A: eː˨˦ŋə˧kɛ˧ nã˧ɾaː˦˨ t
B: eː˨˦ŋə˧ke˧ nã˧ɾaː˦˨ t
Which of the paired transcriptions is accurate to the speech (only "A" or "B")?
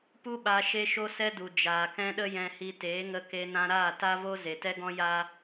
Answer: B